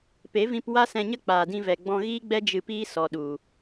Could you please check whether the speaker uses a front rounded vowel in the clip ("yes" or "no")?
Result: no